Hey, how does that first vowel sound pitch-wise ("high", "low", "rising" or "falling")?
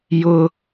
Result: high